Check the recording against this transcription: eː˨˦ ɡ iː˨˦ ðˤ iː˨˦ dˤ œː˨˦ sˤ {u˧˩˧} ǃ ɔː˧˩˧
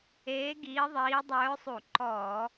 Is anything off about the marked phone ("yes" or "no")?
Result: no